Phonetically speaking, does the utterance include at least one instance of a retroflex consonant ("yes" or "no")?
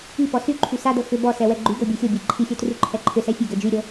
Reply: no